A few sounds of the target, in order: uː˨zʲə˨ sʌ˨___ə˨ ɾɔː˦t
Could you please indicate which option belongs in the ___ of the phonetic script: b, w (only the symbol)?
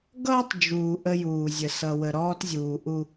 w